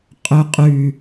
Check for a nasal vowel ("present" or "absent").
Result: absent